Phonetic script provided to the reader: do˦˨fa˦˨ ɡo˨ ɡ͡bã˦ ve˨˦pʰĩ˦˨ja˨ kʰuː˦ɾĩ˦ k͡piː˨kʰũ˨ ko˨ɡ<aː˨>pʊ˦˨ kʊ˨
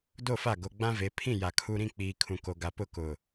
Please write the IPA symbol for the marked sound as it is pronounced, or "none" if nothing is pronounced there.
a˨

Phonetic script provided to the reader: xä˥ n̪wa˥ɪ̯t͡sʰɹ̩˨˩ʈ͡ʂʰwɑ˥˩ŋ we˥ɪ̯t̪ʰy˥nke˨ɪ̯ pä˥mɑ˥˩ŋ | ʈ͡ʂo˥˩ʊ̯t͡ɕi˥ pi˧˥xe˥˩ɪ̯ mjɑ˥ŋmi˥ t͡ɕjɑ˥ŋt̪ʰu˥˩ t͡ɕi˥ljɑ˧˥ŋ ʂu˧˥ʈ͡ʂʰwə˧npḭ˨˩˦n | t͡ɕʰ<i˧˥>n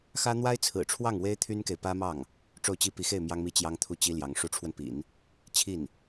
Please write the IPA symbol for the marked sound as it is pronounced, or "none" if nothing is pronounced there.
i˥˩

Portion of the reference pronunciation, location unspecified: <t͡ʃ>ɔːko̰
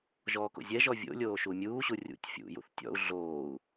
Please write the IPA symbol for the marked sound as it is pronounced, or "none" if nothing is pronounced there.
ʒ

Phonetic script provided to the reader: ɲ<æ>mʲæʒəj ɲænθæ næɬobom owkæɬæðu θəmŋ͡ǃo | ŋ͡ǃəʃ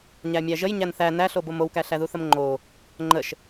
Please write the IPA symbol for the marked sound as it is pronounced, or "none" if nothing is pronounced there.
æ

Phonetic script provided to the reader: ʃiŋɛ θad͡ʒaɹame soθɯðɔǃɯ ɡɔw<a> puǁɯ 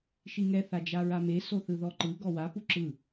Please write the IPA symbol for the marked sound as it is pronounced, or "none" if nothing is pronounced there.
a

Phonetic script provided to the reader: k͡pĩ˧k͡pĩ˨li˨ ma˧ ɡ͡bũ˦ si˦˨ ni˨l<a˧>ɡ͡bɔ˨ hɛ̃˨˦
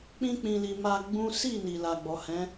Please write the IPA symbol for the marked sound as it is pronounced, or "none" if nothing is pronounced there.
a˨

